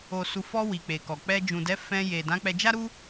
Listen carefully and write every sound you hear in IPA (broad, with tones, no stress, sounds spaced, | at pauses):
o˨ s u˨ f ɔ˧ w i˨ k͡p e˨ k ɔ˨ k͡p ɛ˧ d͡ʒ ũ˨ d ɛ˨˦ f ɛ̃˧ j e˨ d ã˨˦ k͡p ɛ˧ d͡ʒ a˦ ɾ u˦